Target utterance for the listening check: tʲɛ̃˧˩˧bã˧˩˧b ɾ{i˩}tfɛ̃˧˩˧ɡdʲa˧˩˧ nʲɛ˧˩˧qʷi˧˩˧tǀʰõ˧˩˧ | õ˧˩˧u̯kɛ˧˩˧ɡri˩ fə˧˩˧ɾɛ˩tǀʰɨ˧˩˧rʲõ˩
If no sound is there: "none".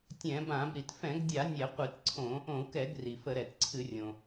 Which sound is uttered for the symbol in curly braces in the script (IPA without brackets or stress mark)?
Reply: i˩